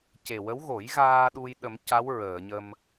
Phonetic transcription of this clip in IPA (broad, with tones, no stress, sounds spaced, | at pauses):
c e˨˩ w ə˧˥ w ɣ o˨˩˦ j ɣ aː˧ ɗ u˧ j ɗ ə˨˩˦ m c a˧˥ w ɹ əː˨˩˨ ɲ ə˧ m